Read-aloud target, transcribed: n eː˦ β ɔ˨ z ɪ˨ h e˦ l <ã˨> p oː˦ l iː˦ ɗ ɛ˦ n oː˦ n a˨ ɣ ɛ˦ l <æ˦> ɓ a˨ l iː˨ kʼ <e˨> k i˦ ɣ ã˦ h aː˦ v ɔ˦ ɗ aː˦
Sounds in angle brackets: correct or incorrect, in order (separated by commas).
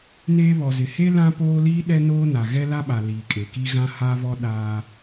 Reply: incorrect, incorrect, correct